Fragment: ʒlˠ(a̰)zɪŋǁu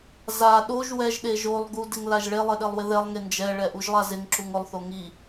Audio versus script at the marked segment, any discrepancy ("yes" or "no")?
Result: yes